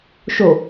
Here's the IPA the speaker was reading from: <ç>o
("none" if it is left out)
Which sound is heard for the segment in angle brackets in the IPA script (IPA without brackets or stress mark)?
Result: ʃ